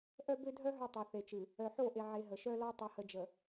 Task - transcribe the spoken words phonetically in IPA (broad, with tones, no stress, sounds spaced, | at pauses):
ʔ œ˦ b ø˦ dʱ œ˦ ɦ œ˦ tˤ ʌ˨ θ e˨ t͡ʃ ɨ˨ | œ˨ ħ o˦˨ ʔ e˨ ʕ e˨ ɦ ə˨ ʃ œ˦ l ɔ˦ tˤ ʌ˨ h ə˨ d͡ʒ ə˨